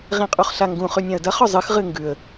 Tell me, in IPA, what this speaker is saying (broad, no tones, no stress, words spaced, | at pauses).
ʁĩqʼuχɬaŋɡũ χʉnʲãə̯dɐ χɵzˤɨx ʁɨŋɡʉə̯